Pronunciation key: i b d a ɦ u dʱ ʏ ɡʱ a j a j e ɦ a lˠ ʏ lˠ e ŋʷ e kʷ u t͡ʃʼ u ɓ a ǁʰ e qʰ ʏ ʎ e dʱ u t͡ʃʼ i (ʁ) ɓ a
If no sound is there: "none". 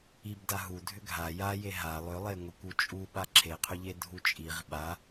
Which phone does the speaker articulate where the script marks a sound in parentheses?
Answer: ʁ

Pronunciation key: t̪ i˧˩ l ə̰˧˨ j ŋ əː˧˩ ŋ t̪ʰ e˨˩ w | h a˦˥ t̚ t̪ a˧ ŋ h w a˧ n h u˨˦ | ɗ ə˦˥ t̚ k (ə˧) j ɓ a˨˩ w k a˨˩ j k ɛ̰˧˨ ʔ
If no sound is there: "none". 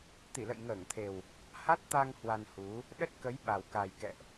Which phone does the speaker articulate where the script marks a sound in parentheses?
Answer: ə˨˦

